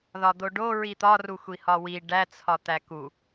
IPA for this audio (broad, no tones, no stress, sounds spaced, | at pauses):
ð ɒ d̪ o ɖ o ɹ i t̪ ɒ r u xʷ i h ɒ w i ɖ æ t͡sʰ ɒ t̪ æ k u